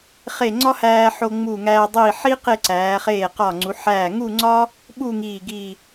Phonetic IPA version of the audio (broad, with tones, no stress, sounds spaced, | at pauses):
χ e˧˩ ŋ͡ǀ ɒ˥ h æː˧ ħ o˧ ŋ͡m uː˧˩ ŋ æː˧ dˤ iː˧˩ ħ i˥ q e˥˧ ǀ æː˩˧ χ eː˧˩ q ɒ˧˩ ŋ͡ǀ u˩˧ ħ æː˧˩ ŋ u˥˧ ŋ͡ǀ ɒ˥ | ɓ u˥˧ ŋ iː˧˩ ɡ i˧˩